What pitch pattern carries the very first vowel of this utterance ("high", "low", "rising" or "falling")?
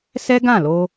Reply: high